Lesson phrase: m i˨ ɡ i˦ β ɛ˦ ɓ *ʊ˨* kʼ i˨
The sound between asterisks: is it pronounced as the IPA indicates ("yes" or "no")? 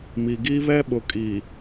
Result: yes